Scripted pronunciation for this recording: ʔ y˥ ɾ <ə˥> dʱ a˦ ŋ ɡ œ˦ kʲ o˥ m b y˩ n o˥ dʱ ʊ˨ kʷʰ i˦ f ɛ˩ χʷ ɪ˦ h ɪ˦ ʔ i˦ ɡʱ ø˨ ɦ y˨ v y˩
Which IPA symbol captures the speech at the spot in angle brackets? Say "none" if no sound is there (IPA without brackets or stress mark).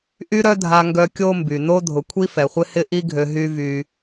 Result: œ˥